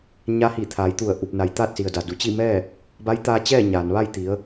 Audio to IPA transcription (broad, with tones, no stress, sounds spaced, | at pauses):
ɲ a˧ h i˧˩ t̪ʰ aː˩˧ j t̪ u˧˩ ə̯ ʔ u˧˩ p̚ n a˩ j t̪ aː˥˨ t̚ s i˩ ə̯ d a˩ d u˩˧ t͡ɕ i˥˨ m ɛː˥˨ | b a˧˥ j t̪ aː˧ t͡ɕ ɛː˥˨ ɲ aː˩ n ʋ a˥˨ j t̪ i˩˧ ə̯